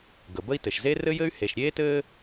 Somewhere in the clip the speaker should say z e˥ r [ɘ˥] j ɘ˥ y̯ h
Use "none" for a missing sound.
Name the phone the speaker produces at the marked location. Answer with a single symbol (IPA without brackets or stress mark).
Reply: ɘ˥